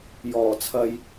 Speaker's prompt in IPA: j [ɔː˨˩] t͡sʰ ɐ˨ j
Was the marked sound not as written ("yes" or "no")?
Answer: no